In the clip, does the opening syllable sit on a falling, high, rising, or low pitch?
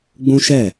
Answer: high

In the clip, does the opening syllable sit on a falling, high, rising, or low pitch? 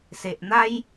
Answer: low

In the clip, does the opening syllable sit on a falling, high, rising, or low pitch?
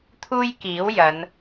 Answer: high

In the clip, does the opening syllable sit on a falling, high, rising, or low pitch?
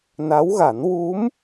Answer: rising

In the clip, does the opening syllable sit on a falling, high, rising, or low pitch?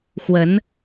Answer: rising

